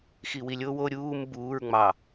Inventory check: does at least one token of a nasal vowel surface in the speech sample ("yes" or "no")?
no